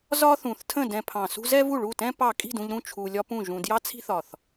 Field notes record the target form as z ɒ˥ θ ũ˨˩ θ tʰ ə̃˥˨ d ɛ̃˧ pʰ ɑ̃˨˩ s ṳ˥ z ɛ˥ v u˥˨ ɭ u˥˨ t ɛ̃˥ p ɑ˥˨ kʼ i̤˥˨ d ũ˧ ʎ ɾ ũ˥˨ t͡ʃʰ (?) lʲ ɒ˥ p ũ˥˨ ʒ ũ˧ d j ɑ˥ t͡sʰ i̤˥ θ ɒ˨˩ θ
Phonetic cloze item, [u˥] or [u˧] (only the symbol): u˧